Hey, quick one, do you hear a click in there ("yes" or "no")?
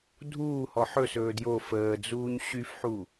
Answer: no